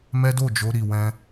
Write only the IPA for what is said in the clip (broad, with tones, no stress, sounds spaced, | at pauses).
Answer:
m ɛ˦ d o˦˨ d͡ʒ o˧ ɾ i˨ w ɛ̃˧